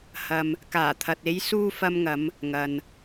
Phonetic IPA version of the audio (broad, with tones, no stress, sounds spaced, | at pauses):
h ɐ˨ m | k aː˨˩ t̪ʰ ɐ˨ t̚ e˨˧ j s uː˧ f ɐ˧ m ŋ ɐ˨˧ m | ŋ ɐ˨ n